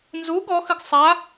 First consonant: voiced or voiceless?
voiced